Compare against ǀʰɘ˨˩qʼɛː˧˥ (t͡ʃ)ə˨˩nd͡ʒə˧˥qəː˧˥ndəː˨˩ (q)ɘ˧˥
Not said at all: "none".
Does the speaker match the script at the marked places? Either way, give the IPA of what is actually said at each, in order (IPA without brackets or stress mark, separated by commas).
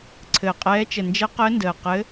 t͡ʃ, q